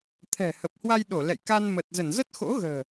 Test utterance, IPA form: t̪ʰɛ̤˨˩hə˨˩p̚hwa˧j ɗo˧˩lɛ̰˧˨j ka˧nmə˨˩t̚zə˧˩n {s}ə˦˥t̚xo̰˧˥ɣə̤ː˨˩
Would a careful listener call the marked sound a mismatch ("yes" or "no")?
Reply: yes